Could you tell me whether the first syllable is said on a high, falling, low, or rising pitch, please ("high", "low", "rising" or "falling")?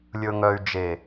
low